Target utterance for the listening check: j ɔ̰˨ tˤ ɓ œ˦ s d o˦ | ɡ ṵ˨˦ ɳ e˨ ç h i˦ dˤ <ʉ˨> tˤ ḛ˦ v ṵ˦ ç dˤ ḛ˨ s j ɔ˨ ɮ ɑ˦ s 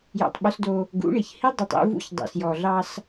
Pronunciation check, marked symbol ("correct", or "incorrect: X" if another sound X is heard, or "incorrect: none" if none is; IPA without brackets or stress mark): correct